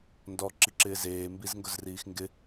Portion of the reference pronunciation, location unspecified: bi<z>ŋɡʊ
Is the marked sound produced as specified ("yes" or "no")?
yes